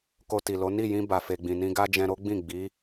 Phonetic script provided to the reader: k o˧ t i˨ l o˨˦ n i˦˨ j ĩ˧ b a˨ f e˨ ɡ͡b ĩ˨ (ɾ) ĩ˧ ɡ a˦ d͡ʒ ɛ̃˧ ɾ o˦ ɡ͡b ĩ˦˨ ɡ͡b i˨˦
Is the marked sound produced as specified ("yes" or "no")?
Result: no